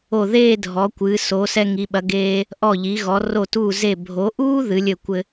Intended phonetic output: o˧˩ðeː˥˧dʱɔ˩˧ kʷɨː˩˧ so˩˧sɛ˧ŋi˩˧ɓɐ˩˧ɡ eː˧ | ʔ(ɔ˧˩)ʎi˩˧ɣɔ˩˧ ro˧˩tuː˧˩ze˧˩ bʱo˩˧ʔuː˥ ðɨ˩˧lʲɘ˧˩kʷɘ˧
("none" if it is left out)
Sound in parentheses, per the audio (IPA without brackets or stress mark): ɔ˧˩